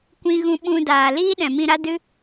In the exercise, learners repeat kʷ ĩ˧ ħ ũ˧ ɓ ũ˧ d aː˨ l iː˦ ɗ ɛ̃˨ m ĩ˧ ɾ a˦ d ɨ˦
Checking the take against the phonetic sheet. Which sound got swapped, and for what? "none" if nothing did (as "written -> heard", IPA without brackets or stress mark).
ħ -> ɣ